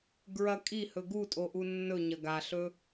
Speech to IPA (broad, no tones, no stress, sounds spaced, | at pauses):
ɡ ɹ ɐ kʼ i h ɵ ɡ u tʼ o ʔ u nː ɵ ɲ ɐ ɡ a ɬ ɵ